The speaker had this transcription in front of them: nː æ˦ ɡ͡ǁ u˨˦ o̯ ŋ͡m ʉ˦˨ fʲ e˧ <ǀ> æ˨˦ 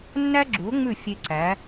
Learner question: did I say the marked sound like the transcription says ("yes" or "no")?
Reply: yes